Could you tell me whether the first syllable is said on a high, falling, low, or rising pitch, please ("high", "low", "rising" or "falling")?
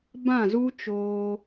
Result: falling